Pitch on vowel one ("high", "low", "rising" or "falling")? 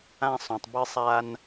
high